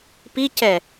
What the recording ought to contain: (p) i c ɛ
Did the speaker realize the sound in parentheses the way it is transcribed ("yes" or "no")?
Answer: yes